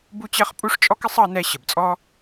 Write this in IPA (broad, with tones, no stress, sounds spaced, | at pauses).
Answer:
b u˥ t͡ɕ ɜ˥ χ pʼ u˥ ʂ t͡ʃʼ ɔ˥ k ɪ˥ sˤ ɑ˥ n ɛ˥ ɕ ə˩ b t͡sʼ ɔ˥